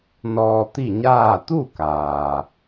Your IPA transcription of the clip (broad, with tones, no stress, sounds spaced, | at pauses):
n ɔː˧ t̪ i˥˨ ɲ aː˥˨ t̪ u˥˨ k aː˩